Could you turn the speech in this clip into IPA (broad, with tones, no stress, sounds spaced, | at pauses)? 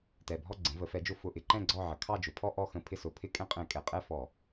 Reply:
t ɛ˨˩ bʱ ɔ˦˨ ɡ͡ǀ ə̃˩˧ v ə˩˧ f ɛ˩˧ d͡ʒ ʊ˧˩˧ f ʊ˨˩ ʔ ɪ˦˨ ǃ ɛ̃˦˨ ɡ͡ǀ ɔ˦˨ ʕ ə˩˧ kʰ ɑ˦˨ d͡ʒ ʊ˩˧ pʰ ɔ˦ ʔ ɔ˦˨ x ə̃˧˩˧ pʰ ɪ˦˨ s ʊ˩˧ pʰ ɪ˦˨ kʼ ɛ̃˦ qʼ ɛ̃˧˩˧ kʼ ɛ˩˧ qʼ ɛ˦˨ f ɔ˧˩˧